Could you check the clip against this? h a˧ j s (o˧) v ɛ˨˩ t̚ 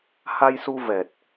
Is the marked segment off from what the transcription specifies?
yes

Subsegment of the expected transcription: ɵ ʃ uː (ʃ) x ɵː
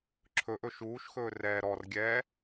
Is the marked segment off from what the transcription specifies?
no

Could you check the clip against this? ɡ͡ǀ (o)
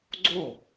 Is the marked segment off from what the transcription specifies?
no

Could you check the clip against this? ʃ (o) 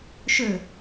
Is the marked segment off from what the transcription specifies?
yes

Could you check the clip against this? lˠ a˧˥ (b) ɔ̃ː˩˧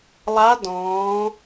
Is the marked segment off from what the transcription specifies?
yes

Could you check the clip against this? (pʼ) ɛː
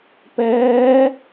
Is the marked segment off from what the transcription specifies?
yes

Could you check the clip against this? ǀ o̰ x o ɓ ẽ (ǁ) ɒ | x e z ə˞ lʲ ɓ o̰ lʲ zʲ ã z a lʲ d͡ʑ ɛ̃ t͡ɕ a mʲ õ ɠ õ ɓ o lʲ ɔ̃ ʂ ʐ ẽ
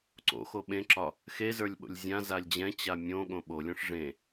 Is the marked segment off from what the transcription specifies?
no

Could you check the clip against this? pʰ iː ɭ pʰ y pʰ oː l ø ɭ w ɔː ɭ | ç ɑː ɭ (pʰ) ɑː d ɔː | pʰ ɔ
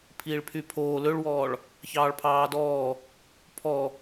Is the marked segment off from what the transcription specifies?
no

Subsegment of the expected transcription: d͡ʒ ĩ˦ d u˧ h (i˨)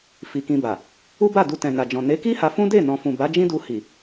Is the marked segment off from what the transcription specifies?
no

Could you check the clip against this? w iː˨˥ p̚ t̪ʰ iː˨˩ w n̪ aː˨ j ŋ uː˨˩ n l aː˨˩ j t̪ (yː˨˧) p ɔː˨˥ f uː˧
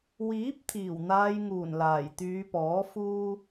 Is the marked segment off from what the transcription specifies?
no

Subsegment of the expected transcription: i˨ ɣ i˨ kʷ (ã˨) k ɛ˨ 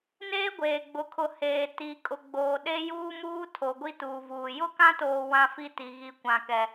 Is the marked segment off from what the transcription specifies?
no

